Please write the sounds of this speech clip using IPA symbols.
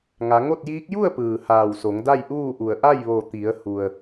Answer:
ŋa˩˧ ŋo˥˨t̚jiː˧˥k̚ ju˥˨ə̯pɯː˩ haː˧˩wso˩˧ŋda˥˨j ʔuː˥˨ʔu˧˩ə̯ ʔa˥˨jʋo˧˩t̪i˩˧ə̯ hu˩ə̯

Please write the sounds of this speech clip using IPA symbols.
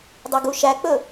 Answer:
dˤøɡuʃæk͡pɵ

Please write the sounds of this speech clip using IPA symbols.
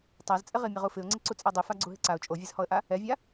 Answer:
tˤazt͡sʼɪʁimʲa ʁufɪʊ̯ŋ͡ǀɪ ǀut͡sʼɛdˤifa ɡ͡ǀuɦɪǀaʊ̯ t͡ʃʼovʲezhɔə̯ʔa | ɛvʲa

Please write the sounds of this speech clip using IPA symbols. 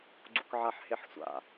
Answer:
ɡ͡ǀṵkʕaħheħsʷa̰

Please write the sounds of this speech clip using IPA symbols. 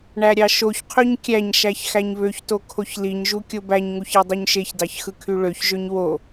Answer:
ɳæɾʲɑʃoçqʰøɲ kʲæɲʃæç xæɲβøçto kʰoçliɲʒu kʲobæɲŋuç edˤuɲʃeçdɑç xɯkʰyɭøçʒøɲ wo

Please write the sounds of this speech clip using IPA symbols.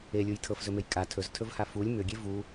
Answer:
elʲuj tʰɤfzɵmej kʼa tʰɵztʰɵvha fulʲ mʏɡʲe vu

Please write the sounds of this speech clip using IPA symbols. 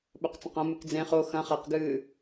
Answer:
ɓɵqt͡sɐ̃qɐ̃ mɨkd͡zẽ χo xɐ̃ χaqɡɨː

